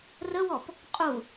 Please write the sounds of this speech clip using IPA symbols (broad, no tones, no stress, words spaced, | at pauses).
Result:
rəwɔp | qʼu